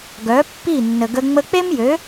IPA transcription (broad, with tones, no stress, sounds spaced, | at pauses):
ɡ œ˨˦ pː i˦˨ nː ə˨ ɡ ə˧ ŋ͡m ə˧ k͡p e˦ m j ø˨˦